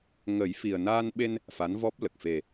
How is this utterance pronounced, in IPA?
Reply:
ŋ ə˨˩˦ j f i˨˩ ə̯ n aː˧ n ɓ e˧ n | f a˧˥ n v ɔ˦˥ p̚ l ə˨˩ k̚ f e˨˩

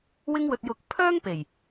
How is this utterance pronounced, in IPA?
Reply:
w ɪ˧ ŋ w ɵ˨ t̚ j ʊ˨˥ k̚ pʰ œː˥ ŋ p e˨˩ j

